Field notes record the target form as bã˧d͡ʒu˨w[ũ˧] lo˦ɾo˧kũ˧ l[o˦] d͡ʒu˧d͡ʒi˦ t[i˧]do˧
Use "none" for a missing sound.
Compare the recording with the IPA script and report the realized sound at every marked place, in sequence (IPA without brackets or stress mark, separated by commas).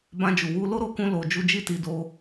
u˧, o˧, i˧